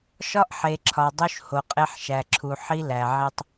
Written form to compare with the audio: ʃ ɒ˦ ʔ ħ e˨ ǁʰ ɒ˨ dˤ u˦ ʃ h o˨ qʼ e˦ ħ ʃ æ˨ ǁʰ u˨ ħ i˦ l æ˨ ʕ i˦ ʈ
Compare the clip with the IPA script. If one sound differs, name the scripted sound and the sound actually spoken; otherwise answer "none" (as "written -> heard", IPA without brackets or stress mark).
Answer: ʈ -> tˤ